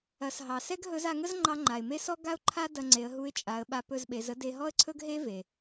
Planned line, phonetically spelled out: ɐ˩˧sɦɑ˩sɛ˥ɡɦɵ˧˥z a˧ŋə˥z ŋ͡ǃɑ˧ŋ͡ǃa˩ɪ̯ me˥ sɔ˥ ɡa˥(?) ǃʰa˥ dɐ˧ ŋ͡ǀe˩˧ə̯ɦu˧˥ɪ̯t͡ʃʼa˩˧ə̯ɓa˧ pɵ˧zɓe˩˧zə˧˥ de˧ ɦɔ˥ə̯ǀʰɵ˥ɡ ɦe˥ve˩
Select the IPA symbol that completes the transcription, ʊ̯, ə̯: ʊ̯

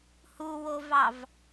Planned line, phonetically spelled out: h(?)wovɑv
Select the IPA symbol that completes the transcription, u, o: u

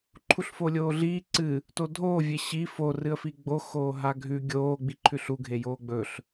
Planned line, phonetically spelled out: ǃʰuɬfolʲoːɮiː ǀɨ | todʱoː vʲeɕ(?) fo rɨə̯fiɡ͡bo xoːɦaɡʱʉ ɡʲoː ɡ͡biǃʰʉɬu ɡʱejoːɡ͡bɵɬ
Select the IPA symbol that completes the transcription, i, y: i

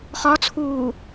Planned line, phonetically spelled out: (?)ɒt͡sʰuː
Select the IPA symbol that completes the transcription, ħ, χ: χ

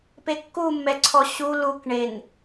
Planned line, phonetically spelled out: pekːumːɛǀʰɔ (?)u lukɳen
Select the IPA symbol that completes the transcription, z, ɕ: ɕ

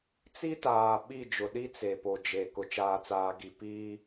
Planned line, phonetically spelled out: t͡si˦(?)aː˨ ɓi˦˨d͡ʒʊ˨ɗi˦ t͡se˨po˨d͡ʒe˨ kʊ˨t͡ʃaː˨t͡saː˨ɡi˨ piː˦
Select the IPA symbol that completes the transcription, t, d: t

